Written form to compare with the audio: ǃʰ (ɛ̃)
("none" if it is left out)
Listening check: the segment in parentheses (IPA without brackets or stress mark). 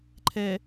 ɛ